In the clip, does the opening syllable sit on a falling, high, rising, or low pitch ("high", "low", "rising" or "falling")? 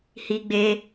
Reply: high